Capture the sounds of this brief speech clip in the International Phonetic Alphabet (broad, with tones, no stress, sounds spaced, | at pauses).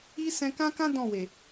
i˦ s ɛ̃˧ k ã˦ k ã˦ d ɔ̃˦˨ w e˨